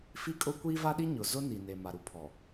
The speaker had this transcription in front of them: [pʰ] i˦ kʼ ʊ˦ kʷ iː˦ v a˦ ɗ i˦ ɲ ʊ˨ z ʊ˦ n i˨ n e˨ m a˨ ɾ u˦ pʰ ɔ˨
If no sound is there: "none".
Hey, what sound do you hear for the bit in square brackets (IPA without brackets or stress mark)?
f